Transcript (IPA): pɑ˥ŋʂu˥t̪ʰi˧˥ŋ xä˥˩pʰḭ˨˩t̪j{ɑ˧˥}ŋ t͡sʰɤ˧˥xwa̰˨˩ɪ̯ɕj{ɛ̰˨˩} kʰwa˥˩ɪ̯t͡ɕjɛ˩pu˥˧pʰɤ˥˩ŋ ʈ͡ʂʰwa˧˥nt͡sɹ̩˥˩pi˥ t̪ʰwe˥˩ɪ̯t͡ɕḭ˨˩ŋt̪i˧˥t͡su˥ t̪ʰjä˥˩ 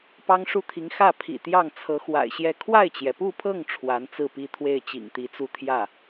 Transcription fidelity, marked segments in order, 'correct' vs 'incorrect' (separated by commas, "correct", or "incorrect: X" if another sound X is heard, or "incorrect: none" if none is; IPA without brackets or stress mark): incorrect: ɑ˥˩, incorrect: ɛ˥˧